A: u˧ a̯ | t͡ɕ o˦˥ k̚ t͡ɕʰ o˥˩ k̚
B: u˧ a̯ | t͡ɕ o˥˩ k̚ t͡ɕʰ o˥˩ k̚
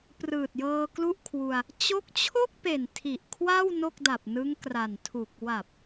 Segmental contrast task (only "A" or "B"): A